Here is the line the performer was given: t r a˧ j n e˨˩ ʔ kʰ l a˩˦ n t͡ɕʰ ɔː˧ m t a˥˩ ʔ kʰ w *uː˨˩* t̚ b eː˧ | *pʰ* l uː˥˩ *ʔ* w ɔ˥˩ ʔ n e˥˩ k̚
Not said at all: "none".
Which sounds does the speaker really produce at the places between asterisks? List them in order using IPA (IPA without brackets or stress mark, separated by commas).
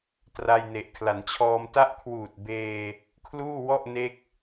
uː˨˩, kʰ, none